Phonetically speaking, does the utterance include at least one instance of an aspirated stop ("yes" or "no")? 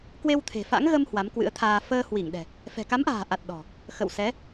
yes